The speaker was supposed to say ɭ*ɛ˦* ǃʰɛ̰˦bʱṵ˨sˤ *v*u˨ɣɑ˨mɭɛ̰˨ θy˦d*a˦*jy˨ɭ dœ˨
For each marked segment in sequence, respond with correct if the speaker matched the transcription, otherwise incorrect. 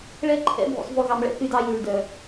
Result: correct, correct, incorrect

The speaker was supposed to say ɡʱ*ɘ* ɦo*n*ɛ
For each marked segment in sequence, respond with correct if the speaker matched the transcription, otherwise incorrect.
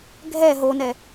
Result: incorrect, correct

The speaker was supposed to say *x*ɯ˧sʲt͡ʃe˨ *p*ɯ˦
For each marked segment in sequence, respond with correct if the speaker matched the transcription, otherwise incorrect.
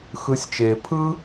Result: correct, incorrect

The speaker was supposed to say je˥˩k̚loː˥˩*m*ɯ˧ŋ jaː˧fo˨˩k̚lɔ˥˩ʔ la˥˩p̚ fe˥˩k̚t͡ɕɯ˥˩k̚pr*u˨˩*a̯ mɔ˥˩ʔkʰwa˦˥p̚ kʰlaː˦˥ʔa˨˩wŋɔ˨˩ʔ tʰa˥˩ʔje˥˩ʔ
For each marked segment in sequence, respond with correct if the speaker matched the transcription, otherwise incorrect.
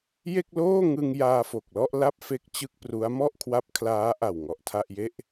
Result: incorrect, incorrect

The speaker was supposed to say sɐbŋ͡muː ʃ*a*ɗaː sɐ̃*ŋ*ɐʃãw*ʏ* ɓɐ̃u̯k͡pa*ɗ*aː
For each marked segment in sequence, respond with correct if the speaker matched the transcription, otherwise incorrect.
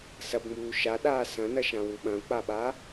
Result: correct, incorrect, incorrect, incorrect

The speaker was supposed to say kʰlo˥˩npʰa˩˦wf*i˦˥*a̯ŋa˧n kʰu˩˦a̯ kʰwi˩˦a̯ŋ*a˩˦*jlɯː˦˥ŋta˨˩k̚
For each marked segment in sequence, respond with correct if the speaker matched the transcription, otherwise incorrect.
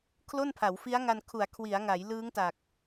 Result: correct, correct

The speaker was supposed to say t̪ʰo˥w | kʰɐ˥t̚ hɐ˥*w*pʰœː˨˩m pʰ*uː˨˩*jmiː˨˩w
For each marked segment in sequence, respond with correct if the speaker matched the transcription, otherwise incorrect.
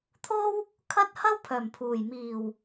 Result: correct, correct

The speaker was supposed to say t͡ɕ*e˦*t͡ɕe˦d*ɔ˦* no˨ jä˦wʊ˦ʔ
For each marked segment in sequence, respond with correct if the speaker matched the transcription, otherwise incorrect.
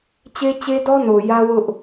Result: correct, correct

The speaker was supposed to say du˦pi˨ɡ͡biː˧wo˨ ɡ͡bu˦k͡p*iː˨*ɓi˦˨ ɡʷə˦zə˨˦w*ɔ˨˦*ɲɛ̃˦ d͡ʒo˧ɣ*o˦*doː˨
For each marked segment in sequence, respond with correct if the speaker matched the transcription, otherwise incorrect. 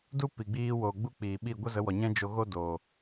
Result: correct, incorrect, correct

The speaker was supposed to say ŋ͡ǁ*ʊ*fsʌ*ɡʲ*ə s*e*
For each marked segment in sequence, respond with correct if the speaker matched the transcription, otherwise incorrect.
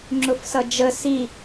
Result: correct, incorrect, incorrect

